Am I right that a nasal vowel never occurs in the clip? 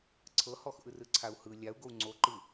yes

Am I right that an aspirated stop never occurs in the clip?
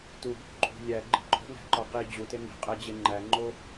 yes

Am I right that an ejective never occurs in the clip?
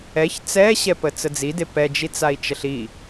yes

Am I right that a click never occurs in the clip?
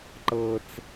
no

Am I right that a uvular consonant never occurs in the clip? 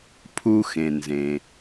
yes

